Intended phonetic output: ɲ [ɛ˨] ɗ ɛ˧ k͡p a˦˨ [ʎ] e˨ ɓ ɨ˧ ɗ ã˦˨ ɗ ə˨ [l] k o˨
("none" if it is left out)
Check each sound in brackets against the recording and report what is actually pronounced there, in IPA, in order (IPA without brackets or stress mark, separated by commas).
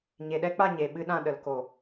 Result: e˨, ɲ, l